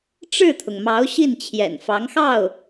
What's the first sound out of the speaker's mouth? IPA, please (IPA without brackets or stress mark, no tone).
ʈ͡ʂ